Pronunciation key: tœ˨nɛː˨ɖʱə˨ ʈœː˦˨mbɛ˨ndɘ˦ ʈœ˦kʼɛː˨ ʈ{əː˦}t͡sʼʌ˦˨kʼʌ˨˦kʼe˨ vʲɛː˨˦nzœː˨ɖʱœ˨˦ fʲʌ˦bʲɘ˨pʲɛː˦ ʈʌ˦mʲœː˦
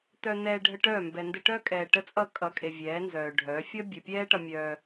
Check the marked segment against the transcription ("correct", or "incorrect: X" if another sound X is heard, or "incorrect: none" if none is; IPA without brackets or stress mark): incorrect: ə˦